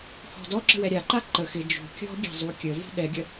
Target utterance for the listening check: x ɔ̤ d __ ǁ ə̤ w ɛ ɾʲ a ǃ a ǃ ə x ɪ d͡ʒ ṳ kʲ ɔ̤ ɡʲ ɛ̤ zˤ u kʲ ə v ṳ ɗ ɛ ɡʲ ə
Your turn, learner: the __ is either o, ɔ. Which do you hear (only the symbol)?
ɔ